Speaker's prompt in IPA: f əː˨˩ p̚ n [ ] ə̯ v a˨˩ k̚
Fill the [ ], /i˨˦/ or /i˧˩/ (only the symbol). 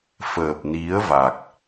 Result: i˨˦